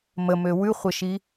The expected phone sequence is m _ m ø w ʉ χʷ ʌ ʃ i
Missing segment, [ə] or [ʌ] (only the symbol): ə